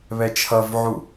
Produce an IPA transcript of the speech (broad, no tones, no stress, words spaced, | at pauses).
βɛt͡ʃʰʌvʕu